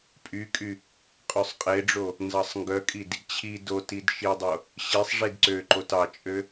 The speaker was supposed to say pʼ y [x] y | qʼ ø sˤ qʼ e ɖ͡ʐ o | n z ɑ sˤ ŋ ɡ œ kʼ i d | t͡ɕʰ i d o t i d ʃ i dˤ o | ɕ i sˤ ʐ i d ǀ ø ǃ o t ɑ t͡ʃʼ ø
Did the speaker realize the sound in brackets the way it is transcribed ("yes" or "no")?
no